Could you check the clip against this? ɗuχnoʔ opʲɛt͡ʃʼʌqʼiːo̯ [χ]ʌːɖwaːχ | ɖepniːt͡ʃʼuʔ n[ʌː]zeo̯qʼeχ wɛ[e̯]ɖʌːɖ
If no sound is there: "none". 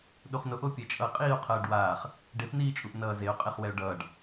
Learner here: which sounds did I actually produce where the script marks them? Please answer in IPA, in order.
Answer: qʰ, ʌː, o̯

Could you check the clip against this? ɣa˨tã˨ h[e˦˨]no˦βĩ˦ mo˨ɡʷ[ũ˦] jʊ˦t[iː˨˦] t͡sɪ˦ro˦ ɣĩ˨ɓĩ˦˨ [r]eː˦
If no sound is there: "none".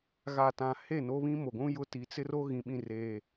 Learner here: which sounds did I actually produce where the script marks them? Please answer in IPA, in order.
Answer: e˦˨, ũ˦, i˨˦, r

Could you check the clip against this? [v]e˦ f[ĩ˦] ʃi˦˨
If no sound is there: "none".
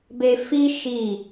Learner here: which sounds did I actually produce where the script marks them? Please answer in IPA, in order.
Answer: b, i˦

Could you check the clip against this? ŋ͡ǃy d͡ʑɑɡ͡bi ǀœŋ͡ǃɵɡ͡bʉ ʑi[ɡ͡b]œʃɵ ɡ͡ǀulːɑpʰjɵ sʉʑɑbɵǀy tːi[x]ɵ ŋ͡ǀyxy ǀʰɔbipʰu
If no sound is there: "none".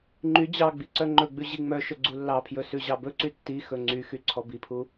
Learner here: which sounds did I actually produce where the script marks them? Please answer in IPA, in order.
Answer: ŋ͡m, x

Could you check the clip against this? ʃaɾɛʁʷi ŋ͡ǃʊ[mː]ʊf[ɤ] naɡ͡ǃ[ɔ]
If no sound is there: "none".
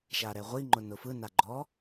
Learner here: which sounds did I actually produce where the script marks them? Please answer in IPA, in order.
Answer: n, ɯ, ɔ

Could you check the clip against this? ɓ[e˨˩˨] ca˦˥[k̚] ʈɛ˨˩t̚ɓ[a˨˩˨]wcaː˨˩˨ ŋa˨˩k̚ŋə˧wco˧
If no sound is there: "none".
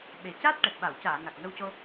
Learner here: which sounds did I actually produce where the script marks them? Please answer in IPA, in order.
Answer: e˨˩, t̚, a˨˩˨

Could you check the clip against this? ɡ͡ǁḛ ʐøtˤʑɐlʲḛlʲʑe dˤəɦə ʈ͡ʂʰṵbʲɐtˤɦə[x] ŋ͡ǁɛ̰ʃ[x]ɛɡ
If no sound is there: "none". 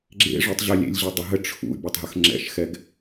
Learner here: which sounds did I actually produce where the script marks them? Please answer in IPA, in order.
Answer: x, x

